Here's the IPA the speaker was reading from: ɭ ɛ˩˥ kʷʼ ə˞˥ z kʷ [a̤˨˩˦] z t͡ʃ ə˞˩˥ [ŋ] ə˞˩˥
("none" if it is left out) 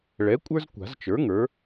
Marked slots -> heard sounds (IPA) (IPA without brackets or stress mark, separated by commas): a̤˨˩˦, ŋ